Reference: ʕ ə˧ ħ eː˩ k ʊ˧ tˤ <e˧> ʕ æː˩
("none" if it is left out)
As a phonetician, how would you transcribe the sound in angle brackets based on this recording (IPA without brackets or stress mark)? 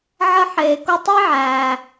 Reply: e˥